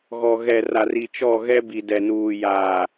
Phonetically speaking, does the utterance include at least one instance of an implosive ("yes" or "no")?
no